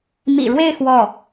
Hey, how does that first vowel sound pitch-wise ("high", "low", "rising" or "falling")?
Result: low